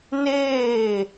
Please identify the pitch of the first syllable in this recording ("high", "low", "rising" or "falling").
falling